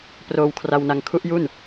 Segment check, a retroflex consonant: absent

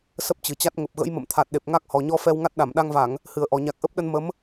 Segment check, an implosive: present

